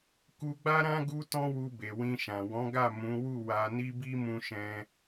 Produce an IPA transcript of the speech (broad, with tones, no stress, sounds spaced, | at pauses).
k u˧ ɡ͡b a˦ ɾ ã˦ ɡ u˧ t ɔ̃˦ w u˧ b e˨ w ĩ˧ ʃ ã˨ w ɔ̃˨˦ ɡ a˦˨ m ũ˨˦ w u˦˨ w a˧ n i˦ b i˦ m ũ˦ ʃ ɛ̃˦